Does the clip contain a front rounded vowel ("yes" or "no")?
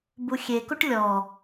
no